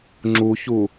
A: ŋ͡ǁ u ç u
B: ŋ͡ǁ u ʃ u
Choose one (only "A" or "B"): A